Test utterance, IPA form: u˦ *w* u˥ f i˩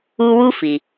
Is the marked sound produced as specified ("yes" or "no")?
yes